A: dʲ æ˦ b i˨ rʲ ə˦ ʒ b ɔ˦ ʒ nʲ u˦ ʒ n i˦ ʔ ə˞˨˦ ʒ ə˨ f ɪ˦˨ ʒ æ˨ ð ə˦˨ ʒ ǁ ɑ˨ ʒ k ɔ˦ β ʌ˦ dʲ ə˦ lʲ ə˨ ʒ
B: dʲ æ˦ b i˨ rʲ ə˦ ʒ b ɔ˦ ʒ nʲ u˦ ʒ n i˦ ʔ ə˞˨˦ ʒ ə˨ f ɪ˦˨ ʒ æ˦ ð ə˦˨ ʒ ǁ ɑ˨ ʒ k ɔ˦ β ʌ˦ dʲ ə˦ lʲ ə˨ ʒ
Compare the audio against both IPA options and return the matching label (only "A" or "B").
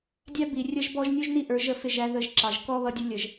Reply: B